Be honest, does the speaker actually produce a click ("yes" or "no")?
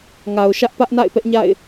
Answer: no